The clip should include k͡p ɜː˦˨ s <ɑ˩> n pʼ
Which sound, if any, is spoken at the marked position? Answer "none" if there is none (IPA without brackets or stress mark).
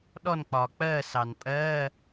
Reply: ɑ˩